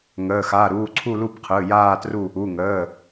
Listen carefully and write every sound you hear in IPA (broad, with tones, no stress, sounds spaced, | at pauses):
ŋ əː˩˧˩ x a˩˧˩ ɾ uː˩˧˩ ǀʰ u˦˨ l u˦˨ b qʰ ɯː˩˧˩ j aː˦˨ t r u˦˨ | u˩˧˩ ŋ əː˩˧˩